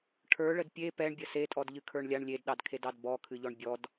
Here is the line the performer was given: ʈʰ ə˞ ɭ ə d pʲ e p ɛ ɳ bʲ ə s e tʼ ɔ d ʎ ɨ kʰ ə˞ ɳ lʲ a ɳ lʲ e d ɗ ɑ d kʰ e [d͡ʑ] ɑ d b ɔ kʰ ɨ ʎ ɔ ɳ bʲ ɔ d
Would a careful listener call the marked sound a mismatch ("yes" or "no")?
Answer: yes